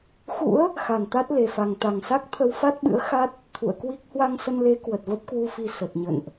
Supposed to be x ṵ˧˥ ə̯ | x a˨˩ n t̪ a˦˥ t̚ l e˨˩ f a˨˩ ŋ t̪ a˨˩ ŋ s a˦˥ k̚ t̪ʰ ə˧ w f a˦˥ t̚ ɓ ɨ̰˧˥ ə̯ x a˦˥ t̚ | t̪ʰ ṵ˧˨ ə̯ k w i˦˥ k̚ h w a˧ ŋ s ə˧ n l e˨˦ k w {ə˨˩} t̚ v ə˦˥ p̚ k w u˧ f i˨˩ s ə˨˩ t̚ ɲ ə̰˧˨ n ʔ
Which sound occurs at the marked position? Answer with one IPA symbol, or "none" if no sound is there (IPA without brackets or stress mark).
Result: ə˨˩